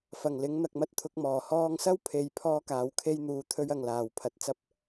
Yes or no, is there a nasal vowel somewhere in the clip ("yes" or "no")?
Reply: no